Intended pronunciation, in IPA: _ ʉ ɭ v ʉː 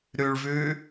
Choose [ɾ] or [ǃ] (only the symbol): ɾ